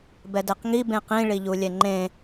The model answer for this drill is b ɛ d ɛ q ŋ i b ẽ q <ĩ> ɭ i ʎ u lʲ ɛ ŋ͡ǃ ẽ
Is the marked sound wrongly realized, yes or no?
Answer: no